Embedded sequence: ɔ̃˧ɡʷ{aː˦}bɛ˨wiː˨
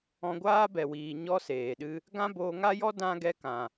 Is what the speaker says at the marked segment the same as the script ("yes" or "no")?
yes